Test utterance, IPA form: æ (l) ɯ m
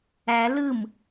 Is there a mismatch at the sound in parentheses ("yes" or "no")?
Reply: no